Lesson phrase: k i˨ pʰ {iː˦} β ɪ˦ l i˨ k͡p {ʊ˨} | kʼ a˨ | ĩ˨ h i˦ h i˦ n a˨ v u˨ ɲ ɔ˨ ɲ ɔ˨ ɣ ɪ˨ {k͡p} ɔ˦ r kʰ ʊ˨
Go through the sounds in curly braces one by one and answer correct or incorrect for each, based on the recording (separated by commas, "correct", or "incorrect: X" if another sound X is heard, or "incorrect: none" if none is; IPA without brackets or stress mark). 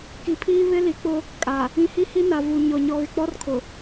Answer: correct, incorrect: ʊ˦, correct